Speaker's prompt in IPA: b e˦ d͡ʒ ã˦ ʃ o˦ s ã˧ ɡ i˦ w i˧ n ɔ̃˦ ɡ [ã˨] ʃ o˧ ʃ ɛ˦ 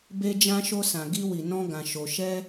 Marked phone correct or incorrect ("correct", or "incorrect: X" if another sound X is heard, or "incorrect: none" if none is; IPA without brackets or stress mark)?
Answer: incorrect: ã˧